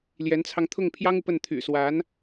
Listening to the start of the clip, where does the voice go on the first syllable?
rising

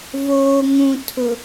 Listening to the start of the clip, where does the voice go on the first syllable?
low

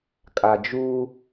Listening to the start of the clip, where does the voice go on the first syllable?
low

